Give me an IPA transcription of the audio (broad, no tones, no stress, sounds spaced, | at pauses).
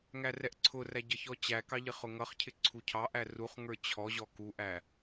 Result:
ŋ æ r ɛ ʔ ǀʰ ʊ r æ ɟ ʌ ç ɔ t͡ɕ æ k ɑ ʎ ɪ χ ʊ ŋ ʌ χ cʰ ɪ ǀʰ u cʰ ɑ ʔ æ r u χ ŋ ə˞ t͡ɕʰ ɔ ʑ ɔ k u ʔ æ